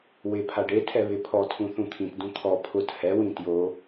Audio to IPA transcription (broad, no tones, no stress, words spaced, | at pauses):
wɪ pʰaɖetʰɛ βɪpʰɔtʰũ θũt̪ʰĩtdũ t̪ʰɔ pʰʊt hɛwĩ tjo